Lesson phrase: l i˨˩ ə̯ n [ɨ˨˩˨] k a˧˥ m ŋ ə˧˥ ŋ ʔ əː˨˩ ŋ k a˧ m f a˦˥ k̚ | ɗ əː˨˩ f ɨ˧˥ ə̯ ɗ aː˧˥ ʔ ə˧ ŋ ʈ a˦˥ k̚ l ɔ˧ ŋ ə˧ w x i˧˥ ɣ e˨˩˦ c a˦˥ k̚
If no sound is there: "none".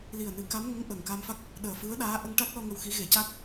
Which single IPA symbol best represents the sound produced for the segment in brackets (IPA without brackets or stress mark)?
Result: ɨ˨˩˦